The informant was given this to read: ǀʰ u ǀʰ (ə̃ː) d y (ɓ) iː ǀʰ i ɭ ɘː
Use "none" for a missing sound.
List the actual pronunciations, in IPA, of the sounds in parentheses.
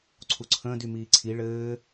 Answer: ə̃ː, m

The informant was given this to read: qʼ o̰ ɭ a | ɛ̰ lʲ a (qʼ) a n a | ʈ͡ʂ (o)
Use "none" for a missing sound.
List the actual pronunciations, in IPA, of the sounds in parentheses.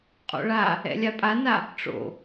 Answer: pʼ, o̰

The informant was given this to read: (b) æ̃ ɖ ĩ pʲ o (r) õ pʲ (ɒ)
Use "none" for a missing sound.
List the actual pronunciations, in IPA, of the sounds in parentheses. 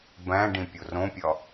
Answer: b, r, ɒ

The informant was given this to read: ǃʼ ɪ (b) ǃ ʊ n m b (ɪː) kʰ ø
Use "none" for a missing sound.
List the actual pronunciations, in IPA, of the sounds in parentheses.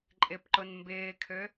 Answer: p, ɪː

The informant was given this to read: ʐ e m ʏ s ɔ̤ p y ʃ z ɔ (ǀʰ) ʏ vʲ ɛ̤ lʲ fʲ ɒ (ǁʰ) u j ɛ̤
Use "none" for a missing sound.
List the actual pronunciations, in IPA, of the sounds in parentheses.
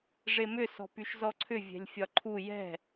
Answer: ǀʰ, ǃʰ

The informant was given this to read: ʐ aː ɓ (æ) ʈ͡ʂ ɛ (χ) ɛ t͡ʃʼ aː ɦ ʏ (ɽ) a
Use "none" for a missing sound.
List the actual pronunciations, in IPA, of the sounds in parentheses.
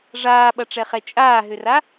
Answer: ɐ, χ, r

